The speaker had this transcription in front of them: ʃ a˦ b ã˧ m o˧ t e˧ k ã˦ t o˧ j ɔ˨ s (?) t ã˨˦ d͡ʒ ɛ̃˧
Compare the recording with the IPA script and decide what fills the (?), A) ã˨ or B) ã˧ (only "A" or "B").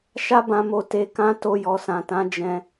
A